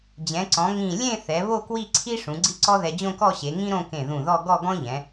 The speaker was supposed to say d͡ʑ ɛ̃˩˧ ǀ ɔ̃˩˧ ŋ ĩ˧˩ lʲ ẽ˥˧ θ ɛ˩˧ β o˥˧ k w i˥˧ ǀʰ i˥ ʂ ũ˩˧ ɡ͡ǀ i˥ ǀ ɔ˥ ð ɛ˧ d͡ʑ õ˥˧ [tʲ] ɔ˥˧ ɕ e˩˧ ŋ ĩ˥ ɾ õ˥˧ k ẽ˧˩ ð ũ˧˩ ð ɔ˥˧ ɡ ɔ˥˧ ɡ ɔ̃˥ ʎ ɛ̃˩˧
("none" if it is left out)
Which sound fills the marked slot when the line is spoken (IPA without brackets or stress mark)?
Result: k